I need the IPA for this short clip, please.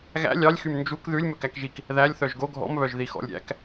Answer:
ɣæ̰ lʲɑlʲxym nd͡ʒuk ðʉlʲ mɵkækʒik | ðælʲ θœʒɡo ɡʱɔ̰mβœʒ ðixɔ̰lʲɾʲæ̰k

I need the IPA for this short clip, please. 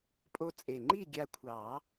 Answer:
pʼo˧t͡sʼe˨˩ŋ͡ǃi˥˨ ɡʲa˧kʷʰɑ˨˩˦

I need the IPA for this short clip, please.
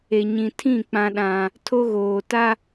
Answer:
e˨ɲĩ˨tʰĩ˦˨ k͡pã˦ɗã˦ | tʰo˦ɣoː˨ta˦

